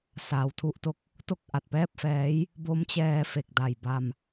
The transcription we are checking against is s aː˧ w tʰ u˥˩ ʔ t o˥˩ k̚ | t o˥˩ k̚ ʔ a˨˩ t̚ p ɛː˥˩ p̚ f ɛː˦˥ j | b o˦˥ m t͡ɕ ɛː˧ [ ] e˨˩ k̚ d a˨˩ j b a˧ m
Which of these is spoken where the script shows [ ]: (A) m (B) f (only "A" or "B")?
B